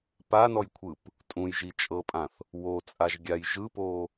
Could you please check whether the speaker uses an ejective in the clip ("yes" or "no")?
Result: yes